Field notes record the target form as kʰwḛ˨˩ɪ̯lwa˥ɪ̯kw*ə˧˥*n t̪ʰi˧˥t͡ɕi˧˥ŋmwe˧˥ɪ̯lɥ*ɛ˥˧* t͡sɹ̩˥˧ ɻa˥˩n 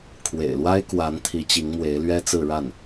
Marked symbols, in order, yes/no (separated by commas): no, no